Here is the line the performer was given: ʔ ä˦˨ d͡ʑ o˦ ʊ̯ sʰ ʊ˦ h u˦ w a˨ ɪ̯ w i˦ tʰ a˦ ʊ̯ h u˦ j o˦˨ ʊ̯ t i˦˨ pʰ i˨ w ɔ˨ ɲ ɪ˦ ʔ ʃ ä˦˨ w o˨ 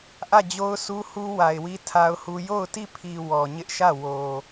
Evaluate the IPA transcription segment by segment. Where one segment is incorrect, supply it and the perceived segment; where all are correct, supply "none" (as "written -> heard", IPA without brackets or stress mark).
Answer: ʊ˦ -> u˦